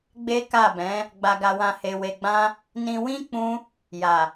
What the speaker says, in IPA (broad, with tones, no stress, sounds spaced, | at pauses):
ɡ͡b e˦ k a˦˨ b ɛ̃˨˦ | ɡ͡b a˧ ɡ a˧ w ã˧ h e˧ w e˧ ɡ͡b ã˦ | n ĩ˧ w ĩ˦ k͡p ũ˦ | j a˨